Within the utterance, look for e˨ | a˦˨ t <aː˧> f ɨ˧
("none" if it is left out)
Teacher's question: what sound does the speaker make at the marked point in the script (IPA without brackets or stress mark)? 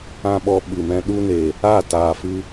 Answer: aː˨